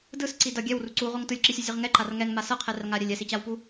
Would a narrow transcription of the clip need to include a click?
yes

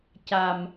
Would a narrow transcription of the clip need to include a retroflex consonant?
no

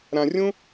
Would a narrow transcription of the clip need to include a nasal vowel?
yes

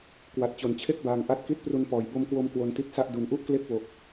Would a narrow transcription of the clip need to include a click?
no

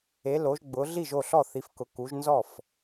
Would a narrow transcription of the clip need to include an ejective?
no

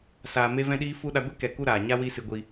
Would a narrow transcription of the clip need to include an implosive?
yes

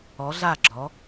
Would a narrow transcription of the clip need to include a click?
yes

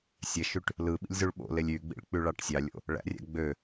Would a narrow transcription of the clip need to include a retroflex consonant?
yes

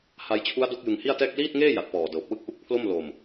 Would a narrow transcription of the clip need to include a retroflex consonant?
no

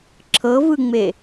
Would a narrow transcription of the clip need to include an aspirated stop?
yes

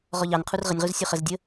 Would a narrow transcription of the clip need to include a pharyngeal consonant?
no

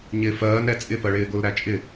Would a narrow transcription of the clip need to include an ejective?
yes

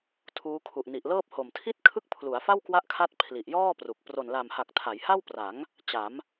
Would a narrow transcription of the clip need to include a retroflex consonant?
no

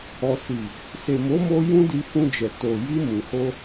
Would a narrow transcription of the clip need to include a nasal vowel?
yes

